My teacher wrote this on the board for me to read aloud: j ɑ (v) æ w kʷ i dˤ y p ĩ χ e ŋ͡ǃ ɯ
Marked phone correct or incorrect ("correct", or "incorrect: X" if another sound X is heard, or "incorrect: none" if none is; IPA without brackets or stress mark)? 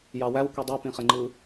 incorrect: w